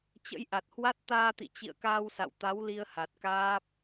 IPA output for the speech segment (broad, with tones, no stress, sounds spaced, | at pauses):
t͡ɕ ə̰˧˥ j ʔ a˨˩ t̚ h w a˦˥ t̚ t̪ aː˧ t̪ ḭ˧˨ t͡ɕ ḭ˧˨ ə̯ k aː˧ w s a̰˧˨ w t̪ a˨˦ w l i˧ ə̯ h a˨˩ t̚ k aː˦˥ p̚